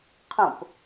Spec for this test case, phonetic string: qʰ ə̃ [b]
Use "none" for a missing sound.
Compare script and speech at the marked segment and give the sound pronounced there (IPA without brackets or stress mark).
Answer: p